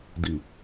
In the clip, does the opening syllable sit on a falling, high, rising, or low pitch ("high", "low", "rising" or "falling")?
low